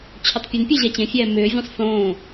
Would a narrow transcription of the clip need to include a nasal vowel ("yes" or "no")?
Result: yes